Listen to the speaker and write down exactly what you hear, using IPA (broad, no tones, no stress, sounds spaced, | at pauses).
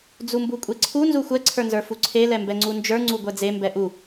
d͡z u m b u kʷʼ e ǀʰ u n z u xʷ ɛ ǀʰ ə˞ n z ə˞ f u ǀʰ e l ɛ m b ɛ ŋ͡ǀ u n d͡ʒ ə˞ ŋ͡ǀ u ɡʷ ɛ d͡z e m b ɛ ʔ u